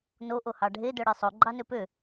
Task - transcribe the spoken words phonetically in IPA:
n o ʔ o h ɑ ɖʱ e d œ ɽ e sˤ o ɡ͡ǃ ɑ n ø p ø

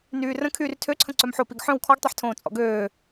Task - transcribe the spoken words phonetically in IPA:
n yː r ə̃ kʰ yː r tʰ ø ǀʰ ə̃ ǀ œ m ħ o p i ɡ ħ œ̃ w kʰ ɔ ɡ tˤ ɛ ħ tʰ õː t͡sʼ ɔ̰ ɡ øː

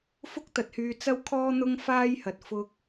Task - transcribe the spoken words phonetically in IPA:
f ʊ˥ k̚ t̪ ɐ˨ t̚ h yː˨ t͡s ɐ˥ w kʰ ɔː˥ n̪ ʊ˥ ŋ f aː˥ j h ɐ˨ t̚ f ʊ˧ k̚

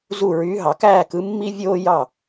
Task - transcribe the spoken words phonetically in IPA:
z u˥˩ ɹ yː˩˥ ɦ ɑ˩ k æː˥˩ k ɯ˩˥ mː i˥ vʲ oː˥ j ɑ˥˩

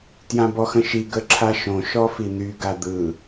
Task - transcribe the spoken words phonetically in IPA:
t j ã b ɔ x ə̃ ʃ i ɡ ə ǁʰ a ʃ õ ʃ ɔ f i n̪ y ɡ a d̪ ɯ

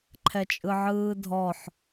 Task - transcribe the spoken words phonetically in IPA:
ǃʰ ɛ t͡ʃʼ ɯ ʕ ɯː dʱ ɔ ħ

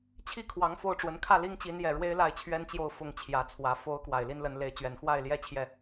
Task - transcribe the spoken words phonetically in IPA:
t͡ɕʰ i˥˩ kʰ w ɑ˧˥ ŋ f o˥˩ ʊ̯ ʈ͡ʂ w ə˧˥ n kʰ ä˥˩ l i˥ ŋ t͡ɕ i˧˥ n j ɛ˨˩ ɻ w e˥ ɪ̯ l a˥˩ ɪ̯ t͡ɕʰ ɥ ɛ˥ n t͡ɕ j o˥˩ ʊ̯ f ʊ˥ ŋ t͡ɕʰ j ä˧˥ t͡sʰ w ä˧˥ f o˧˥ ʊ̯ k w a˨˩ ɪ̯ l i˥ n l ə˧˥ n l e˧˥ ɪ̯ t͡ɕ ɥ ɛ˨˩ n x w a˥˩ ɪ̯ l j ɛ˥ t͡ɕʰ j ɛ˥˩

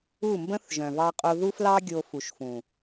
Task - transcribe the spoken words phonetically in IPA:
u˦˨ m b ə̃˦ θ ʒ œ̃˨ v ɑ˧ qʼ o˧ ð u˦ f l ɑ˦ ɡʲ o˧ f u˨ ʃ f ũ˨

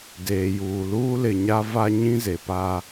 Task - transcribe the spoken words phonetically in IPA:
d eː˨ j uː˨ l uː˦ l ɪ˨ ɲ a˦ v a˦ ɲ ĩ˦ z e˨ p a˦

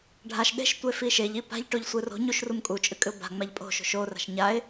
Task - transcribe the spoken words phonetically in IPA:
ɖʱ a ʃ ɗ e̤ ʃ tʷ e f i ʃ e ʎ i p a̤ ʎ ʈ o ʎ sʷ ɨ r o̤ ɲ u ʃ r u m kʼ u t͡ʃʼ ɨ kʼ ɨ ʊ̯ b a̤ ŋ͡m a ʎ pʼ o̤ ʃ o̤ ʃ o r a̤ ʃ ɲ a ɪ̯

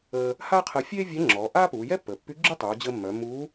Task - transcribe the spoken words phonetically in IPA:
əː˧ | h aː˥ qʰ əː˧ fʲ eː˥ vʲ ɛ˧˥ ŋ͡ǁ ɔː˩˧ ʔ aː˥ p uː˩˧ j ɛ˥ pː əː˩ pː y˧˥ ɡ͡ǁ y˥ tˤ uː˩˧ d͡ʑ əː˧ mː œ˩˧ m u˧˥

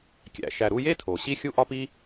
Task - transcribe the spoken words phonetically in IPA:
kʲ æ̰˨ ʃ æ˨ ɾ u˦ j e˥ tʰ o˩ ɕ i˦ xʲ u˥ ʔ ɒ˥ p i˥

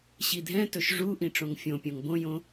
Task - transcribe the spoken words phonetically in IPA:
ɕ i dʱ ɛ̃ t ɵ ʃ ʐ u ʔ ĩ ʈ͡ʂ õ ŋ fʲ õ pʲ õ ŋ b õ j õ

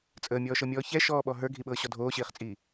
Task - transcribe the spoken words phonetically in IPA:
t͡sʼ əː mʲ ɔː ʃ ɤ mʲ ɔː ç ɛ ʃ ɔː ɓ ɔ ɦ ə˞ ɡʱ i ɓ ɤː ɕ ɔ dʱ oː ɕ iː χ t͡sʼ iː

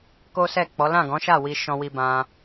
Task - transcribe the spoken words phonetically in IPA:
k o˦ s ɛ˦˨ k͡p ɔ˨˦ l ã˦˨ ɡ ɔ̃˨˦ ʃ a˦˨ w i˧ ʃ ɔ̃˧ w i˧ b ã˧

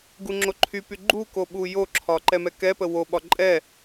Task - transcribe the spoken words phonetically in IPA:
ɡ u ŋ͡ǁ o ǃʰ y p y ɡ͡ǃ u k o ɓ u j o ǁʰ ɒ ǃ ɛ m ɛ k ɛ p ə w o ɓ ɒ ǃʼ ɛ

